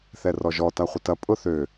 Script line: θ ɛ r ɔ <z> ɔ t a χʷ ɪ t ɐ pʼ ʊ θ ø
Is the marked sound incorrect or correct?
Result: incorrect